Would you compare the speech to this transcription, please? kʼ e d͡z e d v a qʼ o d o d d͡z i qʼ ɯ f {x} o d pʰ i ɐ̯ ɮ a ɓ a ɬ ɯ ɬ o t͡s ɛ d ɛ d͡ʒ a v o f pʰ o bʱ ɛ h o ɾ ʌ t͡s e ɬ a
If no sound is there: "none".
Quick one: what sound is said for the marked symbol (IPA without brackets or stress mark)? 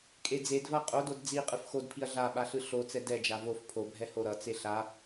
x